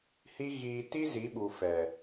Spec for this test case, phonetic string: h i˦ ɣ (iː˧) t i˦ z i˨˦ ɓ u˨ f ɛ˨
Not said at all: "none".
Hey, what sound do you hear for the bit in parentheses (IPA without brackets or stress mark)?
iː˧